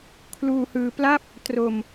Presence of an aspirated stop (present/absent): present